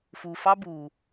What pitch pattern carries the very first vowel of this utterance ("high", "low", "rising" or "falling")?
low